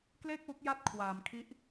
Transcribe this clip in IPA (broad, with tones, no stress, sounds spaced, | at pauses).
k l eː˥˩ k̚ w u˦˥ k̚ j a˦˥ t̚ kʰ w aː˩˦ m kʰ i˦˥ ʔ